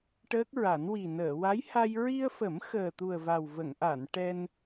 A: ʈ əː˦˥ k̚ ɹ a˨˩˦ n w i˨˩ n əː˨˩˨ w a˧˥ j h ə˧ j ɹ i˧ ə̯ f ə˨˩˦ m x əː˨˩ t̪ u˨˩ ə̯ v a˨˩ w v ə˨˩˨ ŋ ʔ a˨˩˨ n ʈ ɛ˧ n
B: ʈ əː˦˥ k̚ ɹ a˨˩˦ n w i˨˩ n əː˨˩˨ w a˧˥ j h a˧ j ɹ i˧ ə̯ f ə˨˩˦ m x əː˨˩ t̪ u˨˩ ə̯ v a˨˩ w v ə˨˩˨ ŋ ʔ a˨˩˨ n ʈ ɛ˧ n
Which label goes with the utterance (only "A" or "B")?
B